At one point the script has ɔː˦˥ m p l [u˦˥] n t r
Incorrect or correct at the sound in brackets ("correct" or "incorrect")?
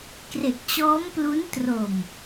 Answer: correct